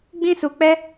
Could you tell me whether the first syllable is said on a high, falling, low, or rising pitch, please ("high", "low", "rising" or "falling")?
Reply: high